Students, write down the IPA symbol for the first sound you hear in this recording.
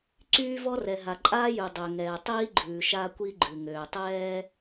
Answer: ǀ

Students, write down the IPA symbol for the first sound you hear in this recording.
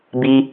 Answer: b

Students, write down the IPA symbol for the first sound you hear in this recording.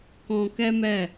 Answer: k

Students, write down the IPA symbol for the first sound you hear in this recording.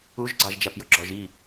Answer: u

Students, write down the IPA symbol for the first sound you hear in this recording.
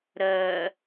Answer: ɾ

